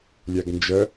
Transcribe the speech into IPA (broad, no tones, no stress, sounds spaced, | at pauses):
lʲ æ ɡ n d͡ʒ ɜ